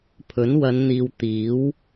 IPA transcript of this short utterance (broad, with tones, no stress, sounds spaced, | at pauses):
pʰ ɵ˨˥ n w ɐ˨˧ n n̪ iː˨ w t̪ iː˨˥ w